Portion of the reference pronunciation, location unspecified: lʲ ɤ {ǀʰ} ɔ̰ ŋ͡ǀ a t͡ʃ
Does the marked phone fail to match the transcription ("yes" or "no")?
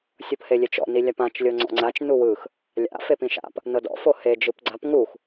yes